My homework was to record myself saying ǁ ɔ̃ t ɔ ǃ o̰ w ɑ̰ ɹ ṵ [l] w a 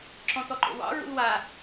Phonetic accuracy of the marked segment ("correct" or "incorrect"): correct